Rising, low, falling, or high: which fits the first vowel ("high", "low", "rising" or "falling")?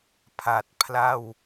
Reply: low